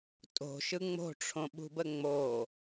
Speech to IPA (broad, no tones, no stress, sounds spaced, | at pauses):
tʼ o̤ ʃ ɯ ŋ͡m o̤ ʈ͡ʂʰ õ ɓ ṳ b ə ŋ͡m o